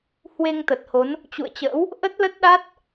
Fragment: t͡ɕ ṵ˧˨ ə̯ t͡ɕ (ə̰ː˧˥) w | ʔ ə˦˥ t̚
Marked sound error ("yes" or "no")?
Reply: no